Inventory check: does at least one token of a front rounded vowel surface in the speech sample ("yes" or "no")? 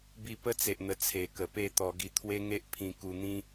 no